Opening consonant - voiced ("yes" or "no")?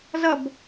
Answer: yes